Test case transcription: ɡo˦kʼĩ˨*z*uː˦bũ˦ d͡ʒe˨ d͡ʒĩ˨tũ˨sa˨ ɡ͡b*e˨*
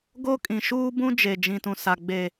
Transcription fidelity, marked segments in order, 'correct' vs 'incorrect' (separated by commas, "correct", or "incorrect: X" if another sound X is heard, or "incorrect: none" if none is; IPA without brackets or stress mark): incorrect: ʃ, correct